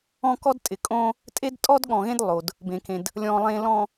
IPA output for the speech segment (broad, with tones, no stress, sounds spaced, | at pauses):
ɔ̃˦ k ɔ˦ d tʼ ɪ˨ kʼ õ˦ | tʼ e˦ d tʼ ɔ˦ d ɠ ɔ̃˨ ɣ ẽ˦ d lˠ o˨ d | b ẽ˨ k ẽ˨ d | lʲ ɔ̃˨ lˠ ẽ˨ l ɔ̃˨